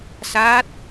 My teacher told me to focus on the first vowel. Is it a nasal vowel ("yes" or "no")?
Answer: no